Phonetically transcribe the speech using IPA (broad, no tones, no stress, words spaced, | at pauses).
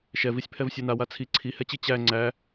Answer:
ʃɛvisʲpʰɛv sʲɛnawa t͡sʰi ǀʰihɛt͡ɕi t͡ɕæ ŋ͡ǀæ